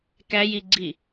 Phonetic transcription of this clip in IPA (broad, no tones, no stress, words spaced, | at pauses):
kæjiɡ͡ǀi